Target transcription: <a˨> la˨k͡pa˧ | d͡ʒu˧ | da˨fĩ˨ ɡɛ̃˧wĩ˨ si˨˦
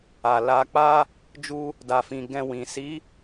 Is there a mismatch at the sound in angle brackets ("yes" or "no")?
no